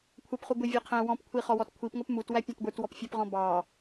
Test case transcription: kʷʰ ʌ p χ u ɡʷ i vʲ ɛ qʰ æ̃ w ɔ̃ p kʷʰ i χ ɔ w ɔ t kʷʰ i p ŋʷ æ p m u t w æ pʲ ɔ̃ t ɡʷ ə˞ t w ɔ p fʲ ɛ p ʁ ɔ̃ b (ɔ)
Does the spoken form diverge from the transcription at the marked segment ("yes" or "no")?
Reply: yes